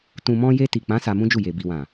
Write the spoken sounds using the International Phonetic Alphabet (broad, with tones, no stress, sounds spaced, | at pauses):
t ũ˨ m ɔ̃˧ j e˧ t i˨ k͡p ã˨˦ s a˧ m ũ˦ d͡ʒ u˦˨ j e˨ b i˨ w ã˨